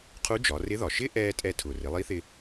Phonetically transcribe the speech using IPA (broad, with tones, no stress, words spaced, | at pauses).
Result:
qʰu˧˥d͡ʒɒ˩˧ rɪ˧˥ðɒ˩ʃɪ˥ ʔɛ˥ tʼɛ˧tʰʊ˩ rɪ˩˧lˠi˧˥θɪ˧